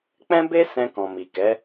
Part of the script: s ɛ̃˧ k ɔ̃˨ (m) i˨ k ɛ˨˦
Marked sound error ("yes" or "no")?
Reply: no